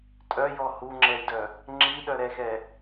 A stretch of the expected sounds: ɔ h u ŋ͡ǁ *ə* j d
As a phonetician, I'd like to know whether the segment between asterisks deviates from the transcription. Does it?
yes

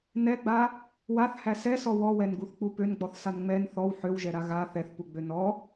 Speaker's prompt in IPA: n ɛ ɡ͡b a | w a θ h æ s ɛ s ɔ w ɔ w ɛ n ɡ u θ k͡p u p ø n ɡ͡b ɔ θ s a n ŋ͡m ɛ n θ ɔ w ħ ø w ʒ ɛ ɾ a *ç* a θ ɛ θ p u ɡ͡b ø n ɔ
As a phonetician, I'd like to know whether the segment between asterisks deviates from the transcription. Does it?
yes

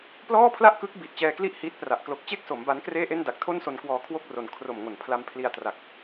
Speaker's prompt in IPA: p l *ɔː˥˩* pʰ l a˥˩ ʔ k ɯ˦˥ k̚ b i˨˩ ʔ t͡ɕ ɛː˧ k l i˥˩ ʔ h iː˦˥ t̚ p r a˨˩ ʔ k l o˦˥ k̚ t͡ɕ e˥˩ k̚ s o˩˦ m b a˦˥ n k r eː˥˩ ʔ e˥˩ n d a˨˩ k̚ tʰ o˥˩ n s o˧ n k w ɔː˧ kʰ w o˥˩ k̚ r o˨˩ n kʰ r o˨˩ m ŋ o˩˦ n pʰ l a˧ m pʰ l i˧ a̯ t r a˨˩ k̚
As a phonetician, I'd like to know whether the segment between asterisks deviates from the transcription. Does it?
no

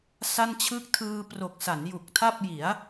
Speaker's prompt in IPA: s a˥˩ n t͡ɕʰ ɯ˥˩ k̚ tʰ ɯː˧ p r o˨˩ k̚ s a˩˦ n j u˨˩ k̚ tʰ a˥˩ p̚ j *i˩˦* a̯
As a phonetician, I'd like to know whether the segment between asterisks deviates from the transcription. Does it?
no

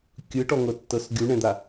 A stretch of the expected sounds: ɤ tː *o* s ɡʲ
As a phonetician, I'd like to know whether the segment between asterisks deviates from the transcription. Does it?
yes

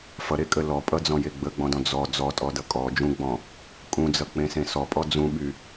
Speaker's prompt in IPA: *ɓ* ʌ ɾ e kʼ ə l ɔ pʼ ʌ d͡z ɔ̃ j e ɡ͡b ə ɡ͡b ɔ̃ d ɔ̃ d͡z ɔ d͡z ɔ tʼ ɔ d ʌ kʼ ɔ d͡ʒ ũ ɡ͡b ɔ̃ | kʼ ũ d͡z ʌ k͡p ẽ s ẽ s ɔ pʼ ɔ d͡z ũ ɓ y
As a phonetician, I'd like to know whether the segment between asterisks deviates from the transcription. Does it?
yes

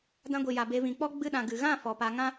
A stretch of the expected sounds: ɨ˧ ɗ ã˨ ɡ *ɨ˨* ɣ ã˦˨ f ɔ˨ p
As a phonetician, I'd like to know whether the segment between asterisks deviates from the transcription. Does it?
no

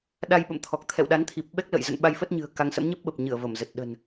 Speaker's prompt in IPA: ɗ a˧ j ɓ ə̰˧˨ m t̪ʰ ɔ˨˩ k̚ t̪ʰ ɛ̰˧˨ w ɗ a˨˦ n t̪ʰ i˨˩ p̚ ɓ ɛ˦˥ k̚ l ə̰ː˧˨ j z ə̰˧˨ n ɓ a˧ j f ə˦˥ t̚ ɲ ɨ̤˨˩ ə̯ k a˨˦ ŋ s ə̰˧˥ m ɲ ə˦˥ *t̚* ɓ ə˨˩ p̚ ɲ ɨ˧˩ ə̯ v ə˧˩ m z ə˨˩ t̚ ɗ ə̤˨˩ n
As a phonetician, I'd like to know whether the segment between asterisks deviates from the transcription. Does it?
yes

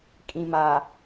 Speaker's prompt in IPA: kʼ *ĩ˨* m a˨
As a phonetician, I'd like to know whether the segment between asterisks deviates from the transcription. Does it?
no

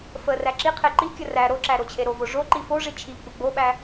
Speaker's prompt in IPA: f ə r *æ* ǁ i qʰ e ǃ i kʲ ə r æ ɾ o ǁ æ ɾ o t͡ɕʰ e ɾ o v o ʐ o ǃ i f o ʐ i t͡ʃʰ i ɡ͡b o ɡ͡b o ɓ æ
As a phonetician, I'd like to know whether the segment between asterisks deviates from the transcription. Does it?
no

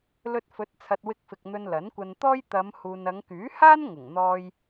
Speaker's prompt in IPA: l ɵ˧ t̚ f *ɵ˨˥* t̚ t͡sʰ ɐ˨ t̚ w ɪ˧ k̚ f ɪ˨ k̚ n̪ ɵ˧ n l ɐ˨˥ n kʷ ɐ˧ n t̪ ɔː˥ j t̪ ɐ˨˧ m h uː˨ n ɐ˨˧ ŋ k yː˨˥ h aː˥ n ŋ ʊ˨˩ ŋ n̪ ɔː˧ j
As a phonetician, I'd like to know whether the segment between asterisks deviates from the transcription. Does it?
no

